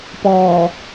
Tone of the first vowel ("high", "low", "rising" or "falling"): low